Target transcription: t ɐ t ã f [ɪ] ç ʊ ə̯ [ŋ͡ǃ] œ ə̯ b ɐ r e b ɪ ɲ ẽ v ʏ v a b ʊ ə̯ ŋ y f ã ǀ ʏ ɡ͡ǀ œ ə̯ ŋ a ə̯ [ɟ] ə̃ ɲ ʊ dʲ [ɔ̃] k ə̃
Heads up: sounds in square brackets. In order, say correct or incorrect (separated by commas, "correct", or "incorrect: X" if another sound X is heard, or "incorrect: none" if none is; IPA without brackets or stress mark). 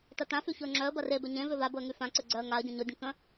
incorrect: y, incorrect: ŋ͡ǁ, correct, incorrect: ə̃